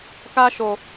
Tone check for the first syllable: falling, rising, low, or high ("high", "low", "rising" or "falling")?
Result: high